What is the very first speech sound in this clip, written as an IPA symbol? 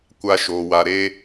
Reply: kʷ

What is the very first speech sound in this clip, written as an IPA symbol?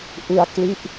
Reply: ʔ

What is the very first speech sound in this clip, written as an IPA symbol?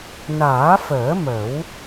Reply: n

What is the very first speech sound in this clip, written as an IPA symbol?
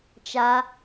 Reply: t͡ʃ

